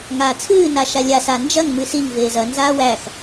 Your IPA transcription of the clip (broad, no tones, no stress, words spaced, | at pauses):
ŋaːt͡sʰɨː naʃalʲa sand͡ʒɐŋ mɨsiŋ veːzɐ nzaːwæx